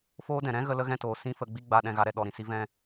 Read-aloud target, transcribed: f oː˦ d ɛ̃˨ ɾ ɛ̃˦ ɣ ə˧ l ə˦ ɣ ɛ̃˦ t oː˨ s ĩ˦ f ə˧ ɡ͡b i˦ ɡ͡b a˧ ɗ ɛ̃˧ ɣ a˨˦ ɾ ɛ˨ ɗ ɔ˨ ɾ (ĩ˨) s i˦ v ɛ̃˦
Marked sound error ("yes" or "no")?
no